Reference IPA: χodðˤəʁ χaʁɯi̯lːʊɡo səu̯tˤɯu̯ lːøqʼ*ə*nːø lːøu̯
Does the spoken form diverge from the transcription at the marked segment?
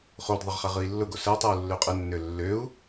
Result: no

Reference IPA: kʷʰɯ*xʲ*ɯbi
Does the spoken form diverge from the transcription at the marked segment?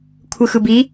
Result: yes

